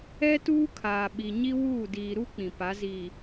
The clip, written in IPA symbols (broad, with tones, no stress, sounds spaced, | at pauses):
ɛ˦ t uː˦ kʰ aː˨ ɓ i˨ ɲ i˦ w uː˦˨ d iː˨ ɾ u˦ k͡p ĩ˨ p a˨˦ z iː˨